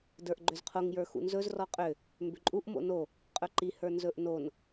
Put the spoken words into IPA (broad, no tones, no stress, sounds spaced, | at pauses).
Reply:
d ə˞ ʔ ɡ͡ǃ ʏ z qʰ o ŋ j ə˞ x ṵ n z ɵ z r ɔ qʼ ʏ | m b ʏ ǃʼ u ʔ m o̰ n o | qʼ ɵ ǃ i h ə˞ n z ɵ ʔ n o n